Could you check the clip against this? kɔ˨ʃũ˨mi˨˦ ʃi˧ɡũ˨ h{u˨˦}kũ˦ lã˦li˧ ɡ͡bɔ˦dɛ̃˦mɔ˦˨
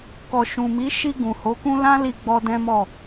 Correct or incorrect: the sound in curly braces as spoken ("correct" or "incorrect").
incorrect